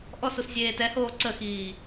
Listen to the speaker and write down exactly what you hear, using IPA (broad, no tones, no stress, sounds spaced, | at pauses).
ʔ ɔ s u s zʲ eː t ɛ h oː ǀ ə x iː